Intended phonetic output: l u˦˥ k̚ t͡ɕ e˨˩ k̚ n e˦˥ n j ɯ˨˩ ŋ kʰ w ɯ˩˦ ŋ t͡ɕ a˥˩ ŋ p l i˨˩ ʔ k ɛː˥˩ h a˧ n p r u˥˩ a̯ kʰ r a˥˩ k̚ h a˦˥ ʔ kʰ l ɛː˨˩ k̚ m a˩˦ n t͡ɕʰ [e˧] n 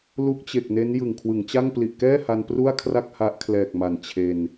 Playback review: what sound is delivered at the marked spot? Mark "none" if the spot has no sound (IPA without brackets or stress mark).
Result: e˧